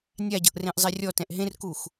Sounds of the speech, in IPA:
nʲ a ɟ ɤ ʔ r ẽ ʔ zˤ e rʲ ɔ t ɛ̃ ʔ ɦ ẽ r k u x

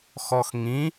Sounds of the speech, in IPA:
x ɔ x ŋ ĩ

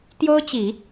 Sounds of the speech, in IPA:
t̪ j o˥ ʊ̯ t͡ɕ i˨˩˦

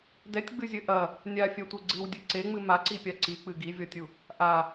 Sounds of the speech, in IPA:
d ɛ tʲ ɡ͡b ɨ zʲ ɘ ʔ ɐ | nʲ a fʲ ɛ tʷ e ɡ͡ǀ ɨ w dʲ ɨ ǀ e ŋ͡m ɨ m a ǀ i pʲ a ǀ i k͡p ɨ ɡ i vʲ ɔ tʲ u | ʔ a

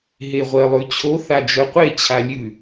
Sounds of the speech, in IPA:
ɦ e ʁʷ ɜ lˠ ʉ t͡ɕʰ o θ a d͡ʒ œ qʷ e t͡ɕʰ a lʲ ʉ

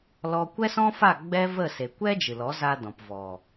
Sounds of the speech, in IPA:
l ɔ˧ kʷ ɛ˦ s ɔ̃˦ f a˦˨ ɡ͡b ɛ˦ v ə˦˨ s e˨ kʷ ɛ˦ d͡ʒ ɨ˨ l ɔ˨˦ z a˧ d ɔ̃˨ p v ɔ˨

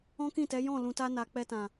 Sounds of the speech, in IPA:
ɔ̃˦ k ĩ˦˨ t ɛ˨˦ j ɔ̃˦˨ l ũ˨ t a˧ n a˨ k͡p ɛ˧ t ã˨

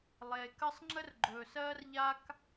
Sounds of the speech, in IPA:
lˠ eː˩ k ə˥ sˤ ŋ͡ǁ ə˥ r ɡ͡ǃ ɵː˩ s ɜː˥ r ʎ a˥ k

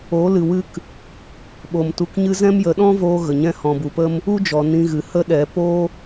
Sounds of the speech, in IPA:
o˨˦ l ɨ˨ w ɨ˦ k | ɓ o˨ m t u˧ k ɲ ɨ˦ z ɛ̃˦ m j ə˨˦ ɗ ɔ̃˦ v oː˧ ɣ ə˨ ɲ ɛ̃˦ h ɔ̃˨ b u˨ p ə˦ m | u˦ d͡ʒ ɔ˨ n ĩ˧ ɣ ɨ˨ h ə˦ ɗ ɛ˨˦ p o˦

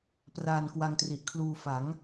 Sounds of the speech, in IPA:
p r aː˧ n k w a˧ ŋ t r i˨˩ ʔ kʰ l uː˧ f a˩˦ ŋ

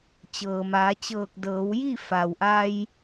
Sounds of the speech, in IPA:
t͡ɕ ɤː˩ m aː˩˧ t͡ɕ ɤː˧˩ k̚ d ɤː˩˧ w j i˥˨ f a˩ w ʔ a˧ j

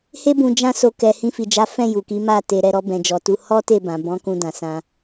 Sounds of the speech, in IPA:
h e˦ b ũ˧ d͡ʒ ã˦ s o˧ k ɛ˧ h ĩ˧ f i˨ d͡ʒ a˨˦ f ɛ̃˦˨ j u˨ k i˨˦ m a˦˨ t e˨ ɾ ɛ˨ ɾ ɔ˧ b ɛ̃˨ d͡ʒ ɔ˨ t u˧ h ɔ˦ t e˦˨ b ã˨ b ɔ̃˨˦ k ũ˧ d ã˨ s ã˧

